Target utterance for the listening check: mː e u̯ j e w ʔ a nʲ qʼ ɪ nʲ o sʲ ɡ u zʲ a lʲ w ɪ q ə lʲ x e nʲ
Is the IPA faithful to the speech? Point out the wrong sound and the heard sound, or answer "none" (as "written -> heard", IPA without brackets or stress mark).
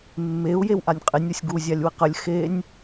none